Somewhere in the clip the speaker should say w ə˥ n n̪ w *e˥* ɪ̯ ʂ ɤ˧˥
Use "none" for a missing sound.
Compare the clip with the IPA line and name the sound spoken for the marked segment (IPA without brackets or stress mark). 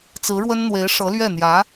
e˧˥